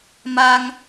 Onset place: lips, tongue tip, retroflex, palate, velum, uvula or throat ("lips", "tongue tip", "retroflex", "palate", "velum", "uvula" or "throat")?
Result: lips